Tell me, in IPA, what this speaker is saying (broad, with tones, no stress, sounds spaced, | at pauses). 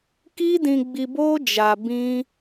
k i˦ d ĩ˧ ɡ͡b i˧ b o˦ d͡ʒ a˧ b ĩ˦